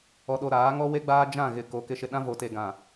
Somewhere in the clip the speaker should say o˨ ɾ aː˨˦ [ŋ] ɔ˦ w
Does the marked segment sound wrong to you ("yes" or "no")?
no